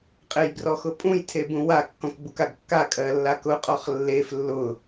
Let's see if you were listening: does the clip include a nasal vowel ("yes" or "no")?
yes